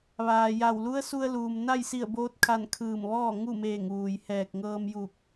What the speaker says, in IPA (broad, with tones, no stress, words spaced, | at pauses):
ʋaː˩ja˧˩w lu˧˥ə̯su˧ə̯luː˩m na˥˨jsi˧˩ə̯boː˧t̚kʰa˧˩n kʰɯː˧˩mʋɔː˥˨ ŋu˥˨meː˧˩ŋʋuː˩j hɛː˧˩k̚ ŋɤː˧mju˧˩k̚